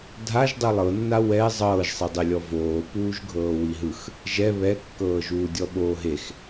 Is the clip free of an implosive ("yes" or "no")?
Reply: no